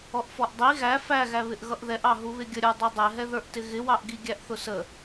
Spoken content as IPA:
ɔ ʔ f ɔ ʔ dˤ i ɣ æ f æ ɣ æ β ɪ ʔ ɣ ʌ ʔ ð ɛ ʔ ɑ ɦ u β ɪ ɡʲ ə ɾʲ ə˞ dˤ ɛ dˤ ɛ ɦ ɛ ð ə˞ ʔ t ɪ ɣ ɪ w ɑ ʔ ɡ i ɡʲ æ ʔ θ ʊ s ə

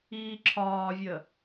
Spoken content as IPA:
iː ǁʰ ɒː vʲ ə

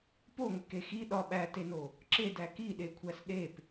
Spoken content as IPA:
p o ŋʷ e k e x i ɗ ɒ ɓ æ t e n o | ǁ e d æ k i ɗ e kʷʰ æ s ɗ e p

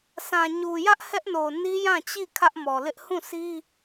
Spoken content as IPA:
s ã˨ ɲ u˨ j ä˦ ʔ h ɛ˦ ʔ n o˨ n i˦ j ã˦˨ t͡ɕ i˦˨ kʰ ä˦ ʔ m ɔ˨ l ɪ˦ ʔ h ũ˦˨ sʰ i˦

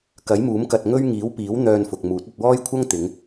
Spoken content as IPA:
k ɐ˨˥ j m uː˨˥ m k ɐ˧ t̚ ŋ ɵ˥ ɥ ŋ iː˨˥ w p iː˨˥ w n̪ œː˧ n f ʊ˨ k̚ m uː˨˥ t̚ ɐ˧ t̚ w ɔː˥ j kʷʰ ɐ˥ ŋ t̪ ɪ˨˧ ŋ

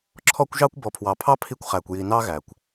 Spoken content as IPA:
ǁʰ ɔ˧ kʷ ʒ ɑ˧ kʷ b ɔ˨ pʰ w ɑ˨ pʰ ɑ˦ pʰ i˧ kʷ χ æ˨ kʷ j i˨ n ɑ˦ ɣ æ˨ kʷ

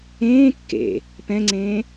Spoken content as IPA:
ẽː kː ḛ | p ɛ̃ ŋ͡ǀ ẽː

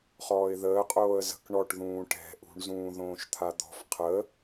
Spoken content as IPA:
χ ɔː ɪ̯ ð əː qʼ oː ə̯ z ə̤ k ɳ ɔ ʈ ð ũː ʈ ɛ̤ ʔ ṳ ɳ z ũː ð õː ʃ t̪ʰ a d̪ ɔ̤ f qʰ ə

